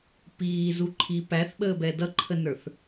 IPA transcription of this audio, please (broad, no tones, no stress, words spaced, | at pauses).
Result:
piːzuǃʰi pæθɓəːbɛ dʌǃʰənə˞θ